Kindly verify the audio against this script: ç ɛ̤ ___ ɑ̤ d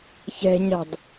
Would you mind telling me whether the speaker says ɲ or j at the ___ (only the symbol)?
ɲ